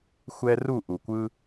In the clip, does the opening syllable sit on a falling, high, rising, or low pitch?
high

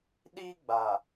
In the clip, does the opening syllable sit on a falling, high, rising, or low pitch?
high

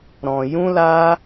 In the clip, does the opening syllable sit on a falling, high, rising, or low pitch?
low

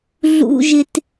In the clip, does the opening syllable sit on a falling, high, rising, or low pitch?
high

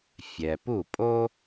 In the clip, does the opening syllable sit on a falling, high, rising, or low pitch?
low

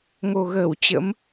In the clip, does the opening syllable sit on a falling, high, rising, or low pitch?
low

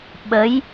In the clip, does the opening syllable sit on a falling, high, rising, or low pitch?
rising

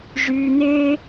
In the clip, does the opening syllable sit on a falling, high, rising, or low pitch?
high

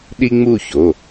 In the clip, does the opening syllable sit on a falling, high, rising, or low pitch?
high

